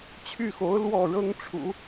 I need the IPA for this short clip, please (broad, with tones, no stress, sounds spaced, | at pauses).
t͡ɕʰ y˥˩ x o˧˥ ʊ̯ l w ɔ˥˩ ɻ ɤ˥ ŋ ʈ͡ʂʰ ṵ˨˩˦